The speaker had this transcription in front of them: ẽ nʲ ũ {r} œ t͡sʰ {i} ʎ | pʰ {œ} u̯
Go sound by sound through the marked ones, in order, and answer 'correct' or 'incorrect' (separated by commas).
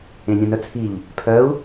incorrect, correct, correct